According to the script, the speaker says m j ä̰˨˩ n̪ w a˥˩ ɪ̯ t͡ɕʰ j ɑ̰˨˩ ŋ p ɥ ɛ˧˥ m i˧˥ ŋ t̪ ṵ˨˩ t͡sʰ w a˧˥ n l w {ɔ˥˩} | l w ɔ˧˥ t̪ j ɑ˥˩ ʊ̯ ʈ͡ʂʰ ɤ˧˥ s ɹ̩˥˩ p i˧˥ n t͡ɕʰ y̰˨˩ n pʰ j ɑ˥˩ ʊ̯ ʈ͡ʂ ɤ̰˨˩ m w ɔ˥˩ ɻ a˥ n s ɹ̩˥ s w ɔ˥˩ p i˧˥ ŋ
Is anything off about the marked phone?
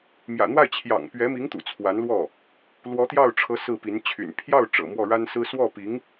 no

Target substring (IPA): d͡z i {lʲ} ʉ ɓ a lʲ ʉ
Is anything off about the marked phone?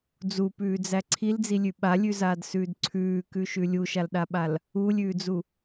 no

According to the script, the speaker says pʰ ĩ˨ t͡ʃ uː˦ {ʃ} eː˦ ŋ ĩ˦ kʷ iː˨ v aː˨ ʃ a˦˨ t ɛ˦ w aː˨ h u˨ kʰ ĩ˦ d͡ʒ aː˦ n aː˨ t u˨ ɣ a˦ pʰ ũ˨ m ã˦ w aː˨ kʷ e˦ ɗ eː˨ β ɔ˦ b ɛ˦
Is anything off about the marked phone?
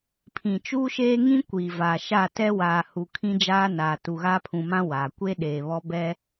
no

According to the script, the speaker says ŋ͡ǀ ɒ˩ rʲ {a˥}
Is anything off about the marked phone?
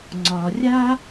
no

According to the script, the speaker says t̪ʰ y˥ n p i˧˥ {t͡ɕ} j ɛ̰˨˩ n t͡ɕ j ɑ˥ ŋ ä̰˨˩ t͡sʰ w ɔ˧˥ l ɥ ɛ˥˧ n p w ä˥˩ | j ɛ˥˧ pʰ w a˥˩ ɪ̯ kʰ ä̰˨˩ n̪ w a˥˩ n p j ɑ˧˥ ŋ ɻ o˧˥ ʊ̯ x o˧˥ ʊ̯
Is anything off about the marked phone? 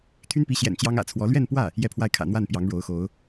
yes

